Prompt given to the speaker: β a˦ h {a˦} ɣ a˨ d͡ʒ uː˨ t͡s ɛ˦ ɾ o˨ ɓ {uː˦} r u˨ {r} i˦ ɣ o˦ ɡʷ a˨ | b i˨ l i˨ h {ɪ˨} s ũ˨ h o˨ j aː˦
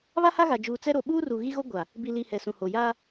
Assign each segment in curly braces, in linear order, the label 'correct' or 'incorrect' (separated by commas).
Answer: correct, correct, incorrect, incorrect